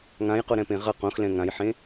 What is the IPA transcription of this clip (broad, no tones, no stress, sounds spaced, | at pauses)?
ŋ ã j q o ɾ ɛ̃ p ẽ ʁ ʌ q õ x l ɛ̃ ŋ ã j ħ ẽ